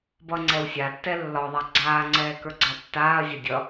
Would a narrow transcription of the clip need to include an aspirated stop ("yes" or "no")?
no